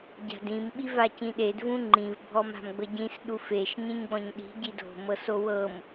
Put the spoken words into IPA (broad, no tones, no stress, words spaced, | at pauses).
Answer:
ɟa̤dĩm ɓivacĩɗed vũŋ͡ǃĩv bʱɔma̤mɡ͡bɤɟĩs ɗufeʃ ɲĩɲɡ͡bɔ̃ɲɗi̤ ɟido̤ mɤsowɤm